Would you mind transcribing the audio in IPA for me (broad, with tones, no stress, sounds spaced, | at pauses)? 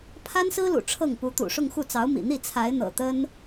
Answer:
pʰ a˥ n s ɹ̩˥ l ṵ˨˩ ʈ͡ʂʰ ɤ˥˩ ŋ p u˧˥ t̪ ṵ˨˩ ʂ ʊ˥˧ ŋ x u˥˩ t͡s ɑ˧˥ ʊ̯ m ḭ˨˩ n̪ i˥˩ t͡sʰ a˧˥ ɪ̯ n̪ ɤ̰˨˩ t̪ ə˥ n